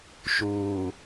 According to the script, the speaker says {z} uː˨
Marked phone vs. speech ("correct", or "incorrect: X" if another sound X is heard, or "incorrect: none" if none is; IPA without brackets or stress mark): incorrect: ʃ